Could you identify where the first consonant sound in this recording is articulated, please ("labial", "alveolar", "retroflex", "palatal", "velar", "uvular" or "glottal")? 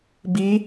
labial